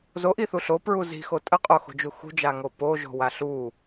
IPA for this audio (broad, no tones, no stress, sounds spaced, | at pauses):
z o ʔ i θ u ɬ o p ɹ u z i̤ x o tʼ ə qʼ o x o̤ d͡ʒ u x ṳ d͡ʒ a ŋ o p o ʒ o̤ w a ɬ u